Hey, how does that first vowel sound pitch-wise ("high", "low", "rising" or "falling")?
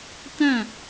falling